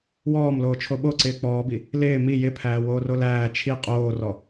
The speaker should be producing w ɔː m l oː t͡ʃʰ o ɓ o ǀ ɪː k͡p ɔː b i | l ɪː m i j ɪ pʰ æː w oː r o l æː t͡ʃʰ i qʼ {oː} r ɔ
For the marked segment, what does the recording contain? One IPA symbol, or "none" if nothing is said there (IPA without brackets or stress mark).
oː